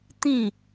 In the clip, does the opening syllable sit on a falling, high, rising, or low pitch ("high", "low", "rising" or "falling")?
falling